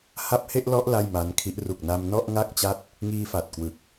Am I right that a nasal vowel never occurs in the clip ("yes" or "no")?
yes